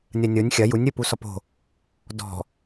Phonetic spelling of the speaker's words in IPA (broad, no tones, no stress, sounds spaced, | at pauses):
nʲ ɐ nʲ o nʲ xʲ ɐ j u nʲ ɾʲ o p u s ɔ p o̤ | d ɔ̤